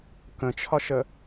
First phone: k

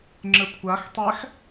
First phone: ŋ͡ǁ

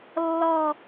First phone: lː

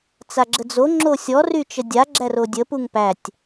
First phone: t͡s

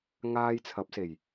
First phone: ŋ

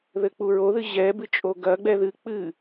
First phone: ð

